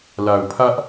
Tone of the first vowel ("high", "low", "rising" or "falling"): low